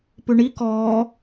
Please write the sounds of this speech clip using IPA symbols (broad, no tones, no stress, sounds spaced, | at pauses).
p ʉ ɳ i k ɔː